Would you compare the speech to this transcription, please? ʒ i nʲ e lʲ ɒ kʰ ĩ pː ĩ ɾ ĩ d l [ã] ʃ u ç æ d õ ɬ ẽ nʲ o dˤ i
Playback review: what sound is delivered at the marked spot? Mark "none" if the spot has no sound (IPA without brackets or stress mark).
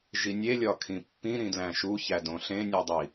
æ̃